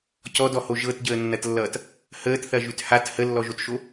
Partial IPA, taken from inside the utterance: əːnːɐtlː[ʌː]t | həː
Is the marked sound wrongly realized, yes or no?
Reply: no